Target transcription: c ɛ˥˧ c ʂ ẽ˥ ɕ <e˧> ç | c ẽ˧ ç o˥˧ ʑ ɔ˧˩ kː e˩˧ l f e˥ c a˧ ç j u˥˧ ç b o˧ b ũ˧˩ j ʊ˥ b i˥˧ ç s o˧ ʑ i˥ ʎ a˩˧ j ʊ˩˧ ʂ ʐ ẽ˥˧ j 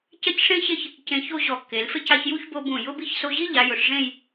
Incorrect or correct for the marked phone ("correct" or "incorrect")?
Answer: incorrect